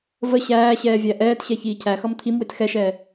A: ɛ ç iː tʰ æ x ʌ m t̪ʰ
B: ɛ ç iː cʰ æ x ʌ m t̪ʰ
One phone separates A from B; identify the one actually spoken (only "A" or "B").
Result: B